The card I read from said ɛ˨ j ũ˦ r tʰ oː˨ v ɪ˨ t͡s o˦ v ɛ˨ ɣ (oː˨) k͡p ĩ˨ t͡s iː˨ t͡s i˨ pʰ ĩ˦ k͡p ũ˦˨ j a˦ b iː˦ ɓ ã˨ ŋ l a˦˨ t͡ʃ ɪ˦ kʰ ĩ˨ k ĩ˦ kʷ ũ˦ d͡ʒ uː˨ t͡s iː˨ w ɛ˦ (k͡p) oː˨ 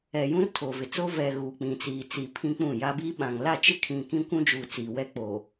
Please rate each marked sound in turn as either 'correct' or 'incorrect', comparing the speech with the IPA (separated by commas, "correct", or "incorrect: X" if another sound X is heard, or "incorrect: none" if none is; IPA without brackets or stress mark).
incorrect: uː˨, correct